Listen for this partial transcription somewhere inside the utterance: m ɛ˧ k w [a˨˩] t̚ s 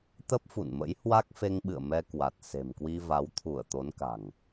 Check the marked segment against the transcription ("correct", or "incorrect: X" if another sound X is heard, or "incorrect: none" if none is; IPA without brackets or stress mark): correct